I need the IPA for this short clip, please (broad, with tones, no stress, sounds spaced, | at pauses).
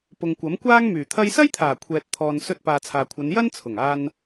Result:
p ʊ˨ ŋ kʷ ɐ˨˥ m kʷ aː˥ ŋ m yː˨˩ t̪ʰ ɐ˧ j s ɐ˥ j t̪ʰ aː˨˩ kʷʰ ɛː˨ t̚ t̪ʰ ɔː˨ n s ɵ˧ t̚ p aː˨ t͡sʰ aː˨ kʷʰ ɐ˨˧ n j ɐ˥ n t͡sʰ ʊ˨˩ ŋ aː˧ n